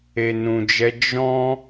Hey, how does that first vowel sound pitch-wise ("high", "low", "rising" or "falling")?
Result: low